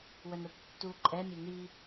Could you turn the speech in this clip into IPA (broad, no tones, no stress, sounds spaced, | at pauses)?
w œ n ɾ o b tː u ǃʼ ɛ mʲ e n i